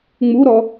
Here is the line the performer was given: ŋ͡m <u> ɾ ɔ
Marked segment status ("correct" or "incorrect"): correct